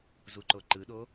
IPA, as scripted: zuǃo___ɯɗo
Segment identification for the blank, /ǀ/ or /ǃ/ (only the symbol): ǃ